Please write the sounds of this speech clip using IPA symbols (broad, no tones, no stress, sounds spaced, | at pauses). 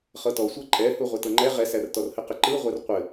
χ ɤ t ɔ sʷ ɤ ǃʼ ɛ h u ʁʷ ɛ t ɤ ŋ͡ǃ ɛ ʁ ɛ s æ r t ɔ r h ɘ q ɘ ǃ ɯ ʁʷ ɛ r qʷ ɘ